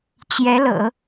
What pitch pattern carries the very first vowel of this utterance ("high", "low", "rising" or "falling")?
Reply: rising